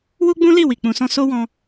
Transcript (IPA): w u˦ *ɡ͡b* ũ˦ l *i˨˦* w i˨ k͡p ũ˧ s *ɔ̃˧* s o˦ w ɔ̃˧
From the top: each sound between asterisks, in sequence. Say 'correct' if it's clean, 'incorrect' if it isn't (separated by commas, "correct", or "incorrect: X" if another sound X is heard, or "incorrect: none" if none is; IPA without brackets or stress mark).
correct, incorrect: i˦˨, incorrect: ɔ̃˦